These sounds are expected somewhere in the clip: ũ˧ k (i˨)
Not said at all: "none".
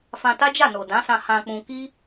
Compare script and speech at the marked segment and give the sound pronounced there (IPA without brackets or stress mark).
i˦